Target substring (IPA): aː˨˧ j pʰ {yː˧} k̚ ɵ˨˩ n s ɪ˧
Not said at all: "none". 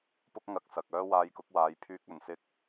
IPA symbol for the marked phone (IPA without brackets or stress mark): yː˧